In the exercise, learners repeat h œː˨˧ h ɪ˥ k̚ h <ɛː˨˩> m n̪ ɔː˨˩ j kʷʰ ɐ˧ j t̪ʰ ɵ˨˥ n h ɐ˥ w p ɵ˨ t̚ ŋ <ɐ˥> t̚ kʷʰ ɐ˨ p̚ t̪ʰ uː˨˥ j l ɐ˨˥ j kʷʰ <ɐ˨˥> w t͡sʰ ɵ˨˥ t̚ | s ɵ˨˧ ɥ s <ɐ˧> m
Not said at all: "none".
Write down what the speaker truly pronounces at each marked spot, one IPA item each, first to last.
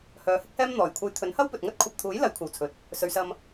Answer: ɛː˥, ɐ˥, ɐ˨, ɐ˧

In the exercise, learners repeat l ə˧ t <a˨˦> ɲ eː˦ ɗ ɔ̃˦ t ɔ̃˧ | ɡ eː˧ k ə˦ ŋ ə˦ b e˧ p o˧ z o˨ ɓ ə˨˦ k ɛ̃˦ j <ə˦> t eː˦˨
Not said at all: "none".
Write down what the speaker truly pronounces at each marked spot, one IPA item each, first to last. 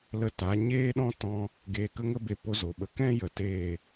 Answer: a˨˦, ə˨

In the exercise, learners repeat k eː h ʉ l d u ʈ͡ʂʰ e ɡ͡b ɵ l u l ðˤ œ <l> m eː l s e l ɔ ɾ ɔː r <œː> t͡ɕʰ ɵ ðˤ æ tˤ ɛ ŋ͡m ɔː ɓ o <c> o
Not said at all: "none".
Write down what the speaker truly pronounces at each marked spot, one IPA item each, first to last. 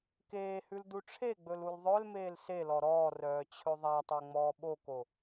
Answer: l, œː, k

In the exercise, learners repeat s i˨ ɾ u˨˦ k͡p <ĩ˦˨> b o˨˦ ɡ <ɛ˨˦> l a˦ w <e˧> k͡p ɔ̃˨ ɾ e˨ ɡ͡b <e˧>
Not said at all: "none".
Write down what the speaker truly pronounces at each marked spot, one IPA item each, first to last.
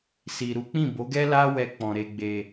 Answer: ĩ˦˨, ɛ˦, ɛ˧, e˨

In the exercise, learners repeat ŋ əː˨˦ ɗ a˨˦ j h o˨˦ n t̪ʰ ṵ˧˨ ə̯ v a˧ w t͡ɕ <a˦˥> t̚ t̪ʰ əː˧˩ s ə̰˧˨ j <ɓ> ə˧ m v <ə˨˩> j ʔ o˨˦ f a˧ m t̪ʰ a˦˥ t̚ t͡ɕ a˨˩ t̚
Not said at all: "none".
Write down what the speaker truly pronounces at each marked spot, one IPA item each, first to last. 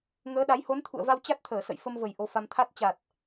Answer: a˦˥, f, ə˨˩

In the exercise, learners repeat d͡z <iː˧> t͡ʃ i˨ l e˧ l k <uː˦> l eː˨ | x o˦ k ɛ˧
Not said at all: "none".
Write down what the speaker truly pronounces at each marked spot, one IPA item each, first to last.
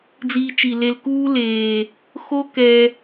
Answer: iː˧, uː˦

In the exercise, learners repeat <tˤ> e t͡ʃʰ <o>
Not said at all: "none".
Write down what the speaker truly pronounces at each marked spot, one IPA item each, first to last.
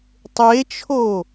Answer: tˤ, o

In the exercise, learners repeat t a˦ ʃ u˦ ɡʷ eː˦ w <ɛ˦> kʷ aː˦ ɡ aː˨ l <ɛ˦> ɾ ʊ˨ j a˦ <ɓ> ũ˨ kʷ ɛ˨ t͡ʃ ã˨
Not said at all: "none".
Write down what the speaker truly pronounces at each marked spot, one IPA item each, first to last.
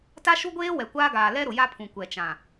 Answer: ɛ˨, ɛ˦, pʰ

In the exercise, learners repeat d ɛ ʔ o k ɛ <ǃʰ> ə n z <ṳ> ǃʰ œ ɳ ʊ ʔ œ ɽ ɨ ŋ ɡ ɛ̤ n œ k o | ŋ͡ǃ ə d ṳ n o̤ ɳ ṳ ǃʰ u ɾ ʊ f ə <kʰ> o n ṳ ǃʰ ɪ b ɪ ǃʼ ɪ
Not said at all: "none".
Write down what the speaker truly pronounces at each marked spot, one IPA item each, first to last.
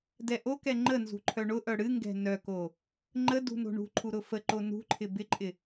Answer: ŋ͡ǃ, ṳ, ǃ

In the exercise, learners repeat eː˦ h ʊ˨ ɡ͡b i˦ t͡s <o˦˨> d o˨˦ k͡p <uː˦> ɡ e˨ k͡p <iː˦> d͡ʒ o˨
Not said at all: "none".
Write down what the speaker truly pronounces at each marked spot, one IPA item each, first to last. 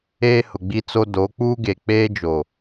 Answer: o˦, uː˦, eː˦

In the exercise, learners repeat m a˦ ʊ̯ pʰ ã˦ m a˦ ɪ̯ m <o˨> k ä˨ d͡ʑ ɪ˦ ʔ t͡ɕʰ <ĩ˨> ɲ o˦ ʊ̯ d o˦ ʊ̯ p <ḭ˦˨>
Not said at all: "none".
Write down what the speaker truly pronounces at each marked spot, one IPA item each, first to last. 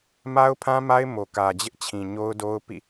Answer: o˨, ĩ˨, ḭ˦˨

